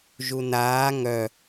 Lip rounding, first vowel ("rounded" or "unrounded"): rounded